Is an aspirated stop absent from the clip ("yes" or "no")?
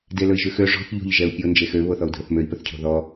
no